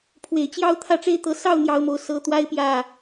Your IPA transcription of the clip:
pʰ w e˨˩ ɪ̯ t͡ɕ j ɑ˥ ʊ̯ t̪ʰ ä˥˩ ʈ͡ʂ e˥ ɪ̯ t̪ ɤ˧˥ s ɑ˥˩ ʊ̯ n̪ j ɑ˥ ʊ̯ m o˥˩ ʊ̯ s ɤ˥ t̪ w a˥ ɪ̯ p j ä˥˩

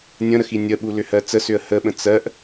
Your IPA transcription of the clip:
nʲ ə̃ ɾ ə x i nʲ ə ɓ u l ʏ h ɜ t͡s ə s ʏ ə̯ h ə ɓ ə̃ t͡s ɜ ʔ

